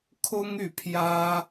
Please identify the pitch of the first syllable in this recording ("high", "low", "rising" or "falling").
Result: high